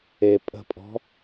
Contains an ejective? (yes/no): yes